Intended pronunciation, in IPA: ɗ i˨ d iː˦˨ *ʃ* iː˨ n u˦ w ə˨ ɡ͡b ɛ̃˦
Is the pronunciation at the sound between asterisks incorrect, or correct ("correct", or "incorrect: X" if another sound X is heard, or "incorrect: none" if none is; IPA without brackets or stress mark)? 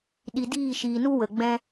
correct